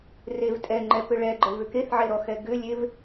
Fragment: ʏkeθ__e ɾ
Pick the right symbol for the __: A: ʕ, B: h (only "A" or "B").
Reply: A